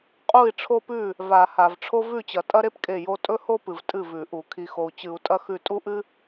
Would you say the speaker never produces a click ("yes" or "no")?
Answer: yes